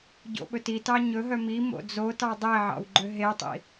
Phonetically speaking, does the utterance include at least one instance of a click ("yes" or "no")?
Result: yes